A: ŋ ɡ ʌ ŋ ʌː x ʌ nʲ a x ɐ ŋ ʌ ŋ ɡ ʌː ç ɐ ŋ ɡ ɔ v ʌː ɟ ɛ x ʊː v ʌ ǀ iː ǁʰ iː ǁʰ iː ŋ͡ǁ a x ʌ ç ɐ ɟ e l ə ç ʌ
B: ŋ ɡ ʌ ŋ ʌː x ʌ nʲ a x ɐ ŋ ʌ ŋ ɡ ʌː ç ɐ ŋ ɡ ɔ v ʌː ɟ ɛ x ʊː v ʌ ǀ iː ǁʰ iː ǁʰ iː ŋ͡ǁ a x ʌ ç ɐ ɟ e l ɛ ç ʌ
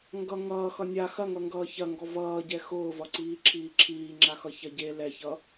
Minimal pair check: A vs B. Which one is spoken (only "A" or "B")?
B